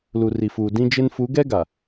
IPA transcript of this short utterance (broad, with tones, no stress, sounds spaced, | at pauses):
l u˨ r i˨ f uː˨ d ĩ˦ d͡ʒ e˦ n f u˨˦ ɡ ɛ˦ ɡ a˨